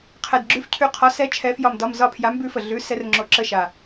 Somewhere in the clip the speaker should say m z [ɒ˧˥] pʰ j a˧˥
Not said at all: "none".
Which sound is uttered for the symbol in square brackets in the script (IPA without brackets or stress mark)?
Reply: ɒ˦˨